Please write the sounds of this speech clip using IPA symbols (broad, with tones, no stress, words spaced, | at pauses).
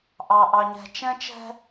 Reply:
ʔɑ˨ʔɑ˨ɲɛ̤˨ t͡ʃɛ̃˦t͡ʃɛ̤˦